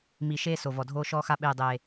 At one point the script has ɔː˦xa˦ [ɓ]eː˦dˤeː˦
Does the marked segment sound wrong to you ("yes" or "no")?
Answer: no